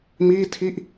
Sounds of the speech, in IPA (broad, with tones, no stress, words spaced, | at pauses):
miː˥˩tʰi˥˩ʔ